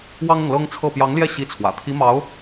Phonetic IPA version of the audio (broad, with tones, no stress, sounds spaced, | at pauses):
w ɑ˥ ŋ ɤ˨ ŋ l ɤ˥ ŋ t͡sʰ ɤ˥˩ p j ɑ˧˥ ŋ l j ɛ˥˩ ɕ i˧˥ t͡sʰ w ä̰˨˩ t̪ʰ i˧˥ m ɑ˧˥ ʊ̯